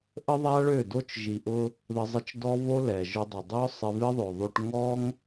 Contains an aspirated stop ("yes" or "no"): no